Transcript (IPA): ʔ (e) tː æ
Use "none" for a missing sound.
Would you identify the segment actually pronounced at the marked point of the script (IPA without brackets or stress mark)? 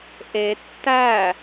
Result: e